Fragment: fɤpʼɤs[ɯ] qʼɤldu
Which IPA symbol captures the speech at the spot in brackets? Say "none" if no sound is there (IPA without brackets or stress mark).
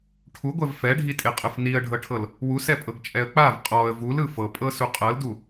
u